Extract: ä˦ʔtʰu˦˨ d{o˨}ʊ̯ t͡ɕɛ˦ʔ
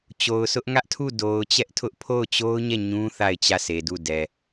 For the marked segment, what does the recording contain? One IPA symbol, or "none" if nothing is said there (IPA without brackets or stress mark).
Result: o˨